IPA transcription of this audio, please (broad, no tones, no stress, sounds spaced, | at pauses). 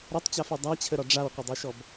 ɾ ɔ tˤ t͡ɕ a f i dˤ a t͡ɕʰ ə ɾ ɒ ɖ͡ʐ a w qʷ ə dˤ i ʃ ɔ b